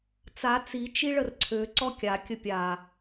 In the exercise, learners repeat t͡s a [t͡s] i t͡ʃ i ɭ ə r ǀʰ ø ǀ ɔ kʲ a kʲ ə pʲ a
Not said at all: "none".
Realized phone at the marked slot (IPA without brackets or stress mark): t͡s